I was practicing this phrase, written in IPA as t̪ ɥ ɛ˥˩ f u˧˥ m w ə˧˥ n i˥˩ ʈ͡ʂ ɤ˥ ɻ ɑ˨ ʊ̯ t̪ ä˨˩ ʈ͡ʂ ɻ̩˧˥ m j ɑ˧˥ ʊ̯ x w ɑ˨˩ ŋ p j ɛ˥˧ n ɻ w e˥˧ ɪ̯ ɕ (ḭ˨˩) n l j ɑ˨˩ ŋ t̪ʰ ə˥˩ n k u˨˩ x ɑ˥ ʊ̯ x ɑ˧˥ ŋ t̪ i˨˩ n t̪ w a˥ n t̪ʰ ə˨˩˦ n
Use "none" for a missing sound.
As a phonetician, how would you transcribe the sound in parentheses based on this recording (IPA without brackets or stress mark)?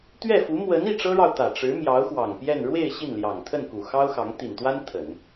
i˥˩